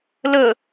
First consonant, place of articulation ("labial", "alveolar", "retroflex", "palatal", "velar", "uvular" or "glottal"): alveolar